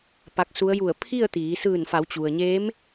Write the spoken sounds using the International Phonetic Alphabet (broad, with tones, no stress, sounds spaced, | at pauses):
p a˧˥ k̚ s u˧˥ ə̯ j u˧˩ ə̯ pʰ i˥˨ ə̯ t̪ iː˩˧ s ɯː˧˩ n f a˩˧ w t͡ɕ u˩ ə̯ ɲ eː˧˥ m